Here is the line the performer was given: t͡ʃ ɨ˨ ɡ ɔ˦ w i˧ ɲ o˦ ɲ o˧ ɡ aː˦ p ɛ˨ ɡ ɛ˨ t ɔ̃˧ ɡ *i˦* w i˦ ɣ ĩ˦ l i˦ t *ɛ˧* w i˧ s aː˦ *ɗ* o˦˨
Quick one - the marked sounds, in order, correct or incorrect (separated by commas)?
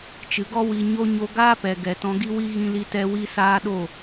correct, correct, correct